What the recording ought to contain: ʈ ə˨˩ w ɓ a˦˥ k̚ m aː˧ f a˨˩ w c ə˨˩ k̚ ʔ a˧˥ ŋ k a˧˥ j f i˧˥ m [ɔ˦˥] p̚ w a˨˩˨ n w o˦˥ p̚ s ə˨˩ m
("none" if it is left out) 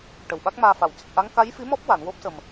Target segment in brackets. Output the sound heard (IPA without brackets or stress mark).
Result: ɔ˦˥